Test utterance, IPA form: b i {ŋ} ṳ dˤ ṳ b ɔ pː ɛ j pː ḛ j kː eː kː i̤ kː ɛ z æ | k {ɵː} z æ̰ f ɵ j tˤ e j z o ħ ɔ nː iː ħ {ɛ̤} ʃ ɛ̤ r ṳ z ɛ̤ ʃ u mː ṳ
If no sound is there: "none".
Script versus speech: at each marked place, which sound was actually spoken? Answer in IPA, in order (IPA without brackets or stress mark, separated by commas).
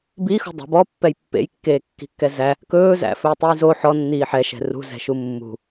x, ɵː, ɛ